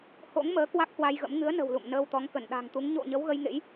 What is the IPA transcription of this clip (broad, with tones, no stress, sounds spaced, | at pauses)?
h o̰˧˥ ŋ m əː˨˦ k w a˦˥ k̚ h w a˧ j ɣ ə̰˧˥ m ŋ ɨ˨˦ ə̯ n ə̤˨˩ w l ṵ˧˨ m n əː˧ w t̪ ɔ˨˦ ŋ k ə˧˩ n ɗ a̤˨˩ ŋ t̪ u˨˦ ŋ ɲ o̰˧˨ ɲ ə˨˦ w ɣ ə˧ j ŋ ḛ˧˥ j